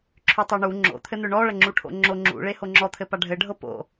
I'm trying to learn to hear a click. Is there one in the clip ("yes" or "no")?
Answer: yes